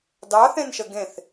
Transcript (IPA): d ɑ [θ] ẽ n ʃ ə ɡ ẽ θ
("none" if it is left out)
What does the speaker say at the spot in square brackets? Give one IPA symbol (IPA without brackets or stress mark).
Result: θ